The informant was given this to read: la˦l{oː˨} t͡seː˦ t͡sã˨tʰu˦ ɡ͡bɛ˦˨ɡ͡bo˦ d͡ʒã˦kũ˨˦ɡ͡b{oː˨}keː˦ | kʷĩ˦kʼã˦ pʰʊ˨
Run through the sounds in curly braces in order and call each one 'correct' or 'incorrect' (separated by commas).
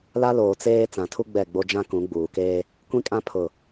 correct, incorrect